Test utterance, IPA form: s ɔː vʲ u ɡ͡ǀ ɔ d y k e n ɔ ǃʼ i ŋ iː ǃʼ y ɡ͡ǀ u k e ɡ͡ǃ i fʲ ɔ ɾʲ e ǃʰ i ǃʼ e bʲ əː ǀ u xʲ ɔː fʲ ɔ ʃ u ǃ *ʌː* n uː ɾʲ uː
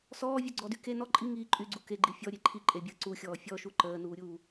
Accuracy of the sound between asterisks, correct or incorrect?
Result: incorrect